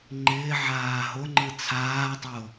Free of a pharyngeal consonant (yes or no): no